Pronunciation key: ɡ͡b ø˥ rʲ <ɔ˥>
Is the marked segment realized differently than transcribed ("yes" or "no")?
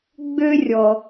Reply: yes